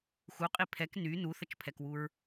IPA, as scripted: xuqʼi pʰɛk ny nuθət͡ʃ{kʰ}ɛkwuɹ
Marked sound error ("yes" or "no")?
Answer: yes